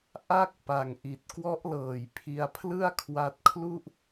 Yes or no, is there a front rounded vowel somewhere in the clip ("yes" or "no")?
no